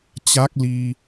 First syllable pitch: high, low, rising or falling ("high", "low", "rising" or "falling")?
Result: rising